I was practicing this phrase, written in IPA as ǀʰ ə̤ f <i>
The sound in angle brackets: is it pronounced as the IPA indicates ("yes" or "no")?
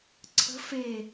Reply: no